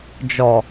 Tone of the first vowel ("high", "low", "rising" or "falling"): low